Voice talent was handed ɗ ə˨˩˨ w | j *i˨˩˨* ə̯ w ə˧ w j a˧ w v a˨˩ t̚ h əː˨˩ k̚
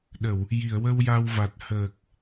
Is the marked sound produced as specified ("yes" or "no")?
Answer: yes